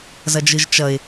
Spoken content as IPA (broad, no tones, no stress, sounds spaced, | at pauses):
z ʌ d͡ʒ ɯ ʒ t͡ʃ ʌ ɪ̯